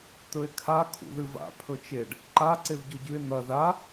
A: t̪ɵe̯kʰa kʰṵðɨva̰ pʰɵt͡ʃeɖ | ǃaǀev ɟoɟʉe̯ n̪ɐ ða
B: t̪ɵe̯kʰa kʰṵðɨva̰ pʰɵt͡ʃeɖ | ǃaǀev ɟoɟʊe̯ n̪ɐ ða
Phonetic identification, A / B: A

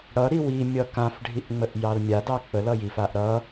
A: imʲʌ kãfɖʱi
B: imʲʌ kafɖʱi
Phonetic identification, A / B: A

